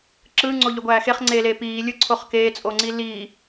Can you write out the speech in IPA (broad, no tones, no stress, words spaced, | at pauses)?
ǁɯːŋ͡ǀoʎøɡʷæː xeχŋ͡ǀeːleː piːlʲɯǀʰoχ keːt͡sʼoŋ͡ǀi liː